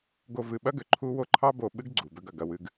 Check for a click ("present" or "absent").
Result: present